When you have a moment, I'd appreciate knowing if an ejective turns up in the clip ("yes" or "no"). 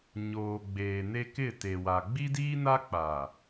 no